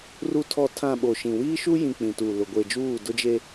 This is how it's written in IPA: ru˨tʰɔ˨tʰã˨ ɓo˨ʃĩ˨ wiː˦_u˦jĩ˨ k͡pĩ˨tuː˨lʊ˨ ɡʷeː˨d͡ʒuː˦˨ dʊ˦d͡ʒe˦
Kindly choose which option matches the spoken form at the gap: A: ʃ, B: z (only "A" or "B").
A